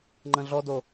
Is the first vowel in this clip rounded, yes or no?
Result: no